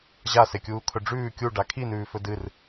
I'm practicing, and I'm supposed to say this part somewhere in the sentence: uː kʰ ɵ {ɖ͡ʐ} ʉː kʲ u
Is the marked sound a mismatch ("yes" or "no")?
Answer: no